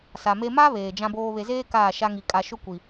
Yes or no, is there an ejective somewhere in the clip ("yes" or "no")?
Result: yes